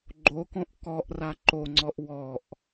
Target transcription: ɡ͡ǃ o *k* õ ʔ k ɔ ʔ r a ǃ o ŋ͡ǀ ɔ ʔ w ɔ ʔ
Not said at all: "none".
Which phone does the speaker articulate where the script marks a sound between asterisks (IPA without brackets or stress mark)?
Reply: k